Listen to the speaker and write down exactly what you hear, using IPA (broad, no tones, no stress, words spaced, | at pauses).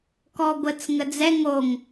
kɔɡʷət͡s ŋəd͡zɛ ŋoŋ